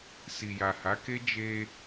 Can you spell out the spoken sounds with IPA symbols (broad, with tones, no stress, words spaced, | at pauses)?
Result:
si˨ja˨ha˨˦ke˦ d͡ʒe˧